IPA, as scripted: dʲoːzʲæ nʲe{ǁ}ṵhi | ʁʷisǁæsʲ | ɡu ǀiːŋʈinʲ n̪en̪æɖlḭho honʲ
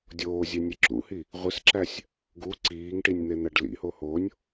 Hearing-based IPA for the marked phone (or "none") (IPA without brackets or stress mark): ǁ